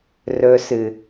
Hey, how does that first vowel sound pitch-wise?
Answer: low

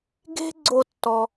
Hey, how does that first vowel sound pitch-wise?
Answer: high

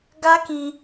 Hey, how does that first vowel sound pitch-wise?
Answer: high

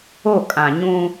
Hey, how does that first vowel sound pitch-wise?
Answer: falling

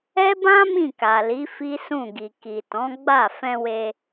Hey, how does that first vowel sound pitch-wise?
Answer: high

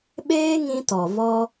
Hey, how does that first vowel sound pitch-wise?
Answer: high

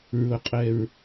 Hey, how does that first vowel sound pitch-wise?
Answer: low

